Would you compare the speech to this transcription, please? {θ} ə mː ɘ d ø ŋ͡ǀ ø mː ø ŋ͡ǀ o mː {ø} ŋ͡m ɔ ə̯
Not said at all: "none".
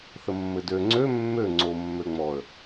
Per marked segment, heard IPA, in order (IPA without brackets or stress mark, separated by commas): θ, ø